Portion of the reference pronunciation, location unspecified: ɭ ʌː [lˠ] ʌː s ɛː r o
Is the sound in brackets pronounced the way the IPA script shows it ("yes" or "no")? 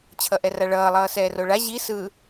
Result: yes